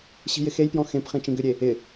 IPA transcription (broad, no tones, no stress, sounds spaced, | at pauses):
ɕ i̤ j ɪ x e j p j ɔ̃ x ẽ p χ ĩ t͡ʃ ĩ ɡ ʏ ɾʲ e | ɪ